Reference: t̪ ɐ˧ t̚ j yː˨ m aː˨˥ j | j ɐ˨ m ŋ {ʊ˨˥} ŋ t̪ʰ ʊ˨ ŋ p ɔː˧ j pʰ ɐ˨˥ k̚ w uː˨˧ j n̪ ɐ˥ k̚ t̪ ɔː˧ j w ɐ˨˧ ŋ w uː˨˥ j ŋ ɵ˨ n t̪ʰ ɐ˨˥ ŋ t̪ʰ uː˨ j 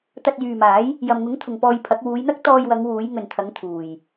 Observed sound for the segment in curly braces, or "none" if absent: ʊ˨˥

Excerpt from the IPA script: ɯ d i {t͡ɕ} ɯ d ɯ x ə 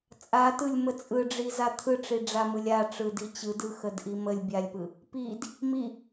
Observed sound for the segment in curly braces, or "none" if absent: t͡ɕ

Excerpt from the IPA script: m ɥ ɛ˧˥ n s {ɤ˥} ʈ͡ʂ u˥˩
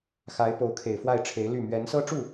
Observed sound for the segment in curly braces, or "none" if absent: ɤ˥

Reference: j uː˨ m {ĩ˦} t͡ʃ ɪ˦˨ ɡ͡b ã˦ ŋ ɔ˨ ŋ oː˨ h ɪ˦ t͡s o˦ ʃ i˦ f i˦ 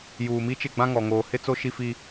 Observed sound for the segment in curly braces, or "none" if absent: i˦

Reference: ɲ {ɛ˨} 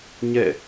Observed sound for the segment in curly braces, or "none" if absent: ɛ̰˦˨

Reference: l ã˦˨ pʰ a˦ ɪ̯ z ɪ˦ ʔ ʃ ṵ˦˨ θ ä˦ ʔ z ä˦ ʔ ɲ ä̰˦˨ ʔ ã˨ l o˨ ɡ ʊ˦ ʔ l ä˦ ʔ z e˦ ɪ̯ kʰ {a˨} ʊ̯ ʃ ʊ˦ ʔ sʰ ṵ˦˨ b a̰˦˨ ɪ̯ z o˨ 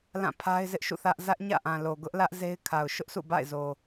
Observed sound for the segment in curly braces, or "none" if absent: a˨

